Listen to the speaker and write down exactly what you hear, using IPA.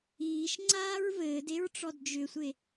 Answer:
iː ʃ ŋ͡ǀ aː ɹ v ɘː d e ɹ ʈ͡ʂ ɔ d d͡ʒ ʏ sʷ e

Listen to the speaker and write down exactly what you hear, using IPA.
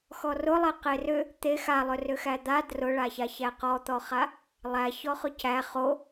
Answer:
x ɔ r ʊ lˠ e q e r ʏ | t̪ e x a lˠ ʏ r ʏ x æ d̪ a d r ʊ ɭ a ç a ç æ q ɔ t̪ ɔ χ a | lˠ æ ç ɔ χ ʊ c æ χ o

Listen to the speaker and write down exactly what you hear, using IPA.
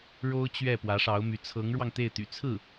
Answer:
ɻ o˥ ʊ̯ t͡ɕ ɥ ɛ˥˩ p w ä˧˥ ʂ ɑ˧˥ ʊ̯ m y˧˥ t͡sʰ ɤ˧˥ ŋ ɻ w ɑ˧ ŋ t̪ e˥˩ ɪ̯ t̪ y̰˨˩ t͡sʰ ɹ̩˥˩

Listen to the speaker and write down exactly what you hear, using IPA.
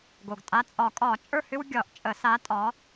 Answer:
ɡ o˩ ɡ tʼ a˨˥ t͡sʼ ɒ˨˩˦ kʼ ɒ˨˩˦ t͡ʃʼ ə˞˦˨ h ʏ˦ w ɡʲ ɒ˨˩˦ ʔ t͡ʃʼ ə˨˩˦ s a˨˥ tʼ ɒ˨˥

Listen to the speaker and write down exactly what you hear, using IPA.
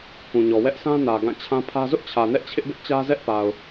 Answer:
k ũ˨ ɲ ɔ˨ w ɛ˦ ʔ s ã˦ n ä˨ ɡ ã˦˨ t͡ɕʰ ã˦ pʰ ä˦ z ʊ˦ ʔ t͡ɕʰ ä˨ n ɛ˦ ʔ t͡ɕʰ ɪ˦ ʔ b ɪ˦ ʔ t͡ɕ ä˦ z ɛ˦ ʔ p a˨ ʊ̯

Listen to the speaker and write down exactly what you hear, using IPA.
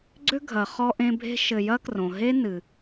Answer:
ɡ͡ǀ ʏ˥ ɡʱ ɐ˩ χ ɔ˦ ʔ ẽ˦ bʱ e̤˥ ʃ ɘ˨ j ɐ˥ k r õ˩ ɦ e˥ n ɨ˩

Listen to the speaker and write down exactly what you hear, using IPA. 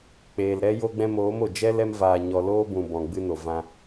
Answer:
k͡p eː˨ l ɾ ɛ˧ j o˧ ɡ͡b ɛ̃˧ m oː˨˦ m o˨ d͡ʒ ɛ˦ l ɛ˦ m v aː˧ ɲ ɔ˧ l oː˦ b ũ˨ b ɔ̃˨ ɡ͡b ɨ˧ n o˨ v ã˧

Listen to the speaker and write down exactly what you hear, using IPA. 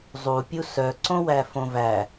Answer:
zˤ u pʲ u s œ ǀ õ w æ f õ v æ

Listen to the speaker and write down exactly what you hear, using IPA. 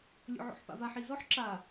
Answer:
lʲ o̰ ʕ o̰ ħ p a̰ v a ħ i z ɔ ħ ǁ a

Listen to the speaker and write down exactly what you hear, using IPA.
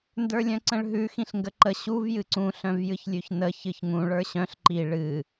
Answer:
n d ə˞ lʲ œ̃ ǀ ə̃ ɭ ɦ ʉ x ĩ ɬ ŋ ɡ ə ǃ ə ɕ u v j ɨ ǀ ũ ɬ œ̃ v j ɨ ç lʲ ʉ ç n ə ç ɨ ç ŋ ũ ɭ ə˞ ɕ œ̃ ɬ ǃ i ɭ ɨ

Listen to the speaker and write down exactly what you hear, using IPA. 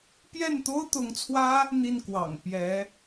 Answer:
p j ɛ˥˩ n t̪ o˥ ʊ̯ t̪ ʊ˧˥ ŋ t͡sʰ w ä˥ | n̪ i˥˩ n k w ɑ̰˨˩ ŋ p j ɛ˧˥

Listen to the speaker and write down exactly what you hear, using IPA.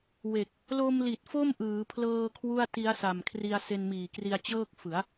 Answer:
w e˨˩ k̚ | l o˧ m l i˨˩ t̚ f o˥˩ m ʔ ɯː˩˦ pʰ l ɤː˧ kʰ w u˥˩ a̯ t i˦˥ a̯ s a˨˩ m kʰ r i˧ a̯ s e˧ n m iː˨˩ k r i˧ a̯ t͡ɕ ɤː˥˩ k̚ f ɯ˩˦ a̯

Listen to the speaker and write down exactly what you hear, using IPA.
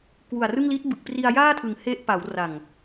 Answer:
k w u˨˩ a̯ r ɯ˥˩ ŋ l i˦˥ t̚ b ɯ˨˩ k̚ p r i˧ a̯ j aː˥˩ tʰ ɯ˩˦ ŋ h e˦˥ ʔ p a˩˦ w r a˨˩ ŋ

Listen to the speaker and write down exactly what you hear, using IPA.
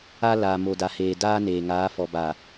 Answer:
a˦ l aː˨ m o˨ d a˨ h eː˨ d aː˦ n eː˨ ŋ aː˨˦ f ɔ˨ b a˨

